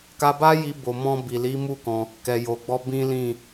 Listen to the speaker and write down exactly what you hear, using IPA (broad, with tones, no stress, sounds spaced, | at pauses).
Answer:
k a˧ b a˦ j i˧ b o˨ m ɔ̃˧ b i˨ l i˨˦ m u˦˨ k ɔ̃˧ | k ɛ˨ j o˨ ɡ͡b ɔ˧ b ĩ˦ l ĩ˦˨